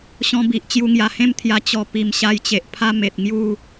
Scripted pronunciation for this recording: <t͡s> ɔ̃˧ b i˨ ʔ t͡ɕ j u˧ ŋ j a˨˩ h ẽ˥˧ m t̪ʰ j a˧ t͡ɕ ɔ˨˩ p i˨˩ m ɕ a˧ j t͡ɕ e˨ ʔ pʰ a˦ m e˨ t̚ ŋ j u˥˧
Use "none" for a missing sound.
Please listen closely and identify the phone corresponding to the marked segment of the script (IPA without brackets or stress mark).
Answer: ɕ